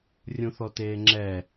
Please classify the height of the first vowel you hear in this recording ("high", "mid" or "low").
high